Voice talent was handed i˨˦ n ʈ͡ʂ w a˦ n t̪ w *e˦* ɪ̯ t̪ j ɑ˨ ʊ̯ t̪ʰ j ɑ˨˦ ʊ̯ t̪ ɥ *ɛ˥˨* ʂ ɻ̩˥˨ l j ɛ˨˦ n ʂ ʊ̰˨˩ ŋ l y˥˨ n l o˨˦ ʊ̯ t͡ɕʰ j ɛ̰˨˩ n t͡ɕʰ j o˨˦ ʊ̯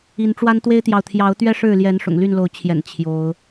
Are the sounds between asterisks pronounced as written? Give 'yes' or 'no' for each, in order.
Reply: yes, no

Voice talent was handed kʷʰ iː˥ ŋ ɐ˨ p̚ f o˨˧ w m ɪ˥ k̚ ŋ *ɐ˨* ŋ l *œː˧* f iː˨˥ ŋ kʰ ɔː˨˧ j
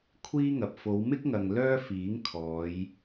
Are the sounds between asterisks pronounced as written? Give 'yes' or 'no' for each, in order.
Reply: yes, no

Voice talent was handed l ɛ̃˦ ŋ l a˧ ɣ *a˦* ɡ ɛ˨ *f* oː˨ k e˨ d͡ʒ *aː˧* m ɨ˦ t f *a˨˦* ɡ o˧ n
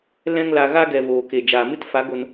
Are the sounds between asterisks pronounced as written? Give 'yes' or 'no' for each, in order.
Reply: yes, no, no, yes

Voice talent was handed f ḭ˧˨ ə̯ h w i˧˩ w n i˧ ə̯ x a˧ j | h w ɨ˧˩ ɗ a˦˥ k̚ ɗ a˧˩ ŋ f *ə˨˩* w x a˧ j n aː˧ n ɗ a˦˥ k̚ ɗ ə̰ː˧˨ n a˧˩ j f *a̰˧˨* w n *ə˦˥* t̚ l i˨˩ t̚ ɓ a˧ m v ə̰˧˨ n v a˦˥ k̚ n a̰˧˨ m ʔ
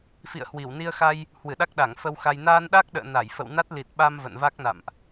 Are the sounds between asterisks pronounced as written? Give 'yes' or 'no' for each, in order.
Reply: no, no, no

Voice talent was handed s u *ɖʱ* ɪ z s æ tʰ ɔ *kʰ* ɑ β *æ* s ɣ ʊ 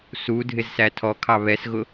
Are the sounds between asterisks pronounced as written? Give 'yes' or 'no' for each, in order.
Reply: no, yes, no

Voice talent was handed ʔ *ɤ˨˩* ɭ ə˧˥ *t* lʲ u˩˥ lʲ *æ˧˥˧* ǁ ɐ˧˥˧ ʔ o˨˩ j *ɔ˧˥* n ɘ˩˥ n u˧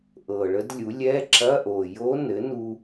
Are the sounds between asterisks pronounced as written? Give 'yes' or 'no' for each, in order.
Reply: yes, no, no, no

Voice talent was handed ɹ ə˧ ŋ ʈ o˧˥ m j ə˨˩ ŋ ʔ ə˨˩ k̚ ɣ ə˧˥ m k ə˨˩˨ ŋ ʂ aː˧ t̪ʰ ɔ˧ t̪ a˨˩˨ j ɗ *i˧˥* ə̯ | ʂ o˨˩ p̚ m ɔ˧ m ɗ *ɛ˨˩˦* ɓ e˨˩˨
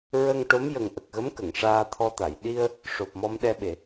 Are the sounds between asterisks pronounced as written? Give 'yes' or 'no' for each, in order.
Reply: no, no

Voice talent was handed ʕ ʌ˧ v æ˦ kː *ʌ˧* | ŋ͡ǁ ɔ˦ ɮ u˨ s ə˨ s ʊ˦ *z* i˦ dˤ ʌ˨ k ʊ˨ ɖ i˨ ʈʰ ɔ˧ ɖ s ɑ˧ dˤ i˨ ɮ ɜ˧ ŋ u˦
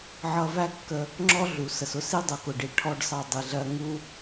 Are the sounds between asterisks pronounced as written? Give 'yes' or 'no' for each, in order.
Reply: no, no

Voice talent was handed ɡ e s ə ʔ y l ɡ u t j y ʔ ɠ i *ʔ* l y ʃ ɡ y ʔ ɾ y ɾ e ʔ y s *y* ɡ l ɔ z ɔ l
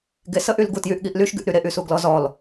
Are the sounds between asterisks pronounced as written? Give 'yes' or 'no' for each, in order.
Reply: yes, no

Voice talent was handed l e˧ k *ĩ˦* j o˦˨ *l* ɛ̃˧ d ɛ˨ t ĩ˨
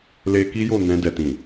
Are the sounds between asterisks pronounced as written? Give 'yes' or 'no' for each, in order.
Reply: no, no

